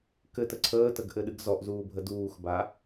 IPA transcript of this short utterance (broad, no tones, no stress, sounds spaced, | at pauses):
k ɘ t ə ǀʰ əː t ə ɡ ʔ ɘ ɗ ɨ ɡ z ɔ ʔ z uː bʱ ə d uː x b a